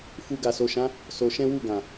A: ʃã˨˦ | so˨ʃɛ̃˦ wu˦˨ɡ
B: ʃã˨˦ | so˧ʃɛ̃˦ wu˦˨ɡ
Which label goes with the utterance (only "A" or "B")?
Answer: B